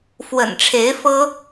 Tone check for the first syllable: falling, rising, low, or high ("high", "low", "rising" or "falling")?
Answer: low